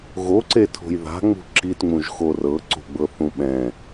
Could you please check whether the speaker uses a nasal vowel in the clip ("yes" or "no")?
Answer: yes